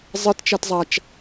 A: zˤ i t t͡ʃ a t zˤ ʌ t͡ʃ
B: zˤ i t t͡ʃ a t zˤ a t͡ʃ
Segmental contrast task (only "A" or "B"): B